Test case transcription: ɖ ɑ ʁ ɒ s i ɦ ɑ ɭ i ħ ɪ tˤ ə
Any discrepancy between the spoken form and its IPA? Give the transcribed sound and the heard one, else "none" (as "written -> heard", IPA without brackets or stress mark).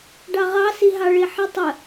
ɒ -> ɑ